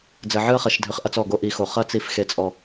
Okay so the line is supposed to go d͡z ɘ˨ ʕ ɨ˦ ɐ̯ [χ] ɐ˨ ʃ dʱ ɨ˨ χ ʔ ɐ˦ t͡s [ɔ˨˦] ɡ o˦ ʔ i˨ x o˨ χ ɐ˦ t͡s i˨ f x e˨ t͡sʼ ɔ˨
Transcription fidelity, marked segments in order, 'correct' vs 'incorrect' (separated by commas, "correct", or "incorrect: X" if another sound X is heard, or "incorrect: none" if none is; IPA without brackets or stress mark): correct, incorrect: ɔ˦˨